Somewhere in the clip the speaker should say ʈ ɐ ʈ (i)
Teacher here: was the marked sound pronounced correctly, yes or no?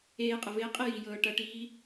no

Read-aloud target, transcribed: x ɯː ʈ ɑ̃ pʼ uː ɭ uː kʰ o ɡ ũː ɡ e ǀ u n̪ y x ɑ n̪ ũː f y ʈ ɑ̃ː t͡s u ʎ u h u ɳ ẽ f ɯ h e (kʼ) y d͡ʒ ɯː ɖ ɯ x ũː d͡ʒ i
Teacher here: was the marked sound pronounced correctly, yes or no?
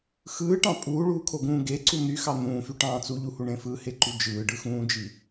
no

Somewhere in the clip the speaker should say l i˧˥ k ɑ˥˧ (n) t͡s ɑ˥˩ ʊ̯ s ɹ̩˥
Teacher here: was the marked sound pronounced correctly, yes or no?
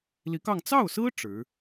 no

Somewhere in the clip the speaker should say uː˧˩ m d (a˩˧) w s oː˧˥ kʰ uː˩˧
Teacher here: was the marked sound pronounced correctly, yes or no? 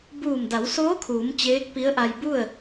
yes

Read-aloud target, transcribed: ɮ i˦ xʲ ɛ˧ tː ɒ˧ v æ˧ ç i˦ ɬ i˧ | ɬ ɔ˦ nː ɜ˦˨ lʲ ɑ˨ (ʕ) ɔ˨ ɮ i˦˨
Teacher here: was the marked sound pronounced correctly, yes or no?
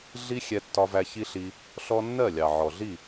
yes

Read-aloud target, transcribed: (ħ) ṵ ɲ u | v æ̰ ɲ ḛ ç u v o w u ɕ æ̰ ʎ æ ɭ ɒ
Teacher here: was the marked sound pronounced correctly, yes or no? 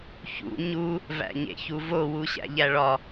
no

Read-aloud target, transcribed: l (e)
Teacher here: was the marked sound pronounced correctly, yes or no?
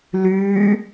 no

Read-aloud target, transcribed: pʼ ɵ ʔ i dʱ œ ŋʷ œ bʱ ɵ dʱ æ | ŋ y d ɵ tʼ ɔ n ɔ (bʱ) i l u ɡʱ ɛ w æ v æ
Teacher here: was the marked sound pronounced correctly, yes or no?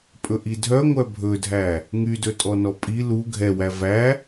no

